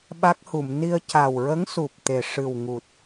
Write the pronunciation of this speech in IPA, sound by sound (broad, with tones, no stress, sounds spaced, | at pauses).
ɓ a˦˥ k̚ h u˨˩˨ m n i˧ ə̯ c a˨˩ w ɹ ə˧˥ ŋ s u˨˩ p̚ t̪ e˨˩ ʂ ɨ˨˩ w ŋ u˨˩ t̚